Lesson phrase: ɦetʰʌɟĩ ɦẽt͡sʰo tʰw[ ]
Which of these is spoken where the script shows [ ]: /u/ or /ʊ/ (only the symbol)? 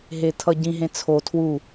u